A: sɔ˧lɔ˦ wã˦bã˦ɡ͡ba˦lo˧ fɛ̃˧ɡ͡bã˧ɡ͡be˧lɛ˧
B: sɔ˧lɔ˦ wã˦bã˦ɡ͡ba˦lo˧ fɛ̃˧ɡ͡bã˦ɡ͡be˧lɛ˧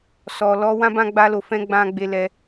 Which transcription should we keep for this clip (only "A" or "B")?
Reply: A